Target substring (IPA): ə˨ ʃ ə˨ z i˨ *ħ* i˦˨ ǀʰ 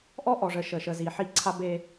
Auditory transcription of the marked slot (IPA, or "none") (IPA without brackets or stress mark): ħ